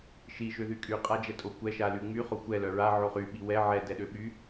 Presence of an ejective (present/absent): present